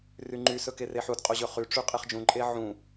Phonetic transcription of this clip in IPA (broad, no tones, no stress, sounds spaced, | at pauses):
r y ŋ͡ǃ y s ɵ k e r e ħ u d qʼ o ʑ ɵ χ y ʈ͡ʂ y qʼ e χ d͡ʒ ũ ǃʼ e ʕ ũ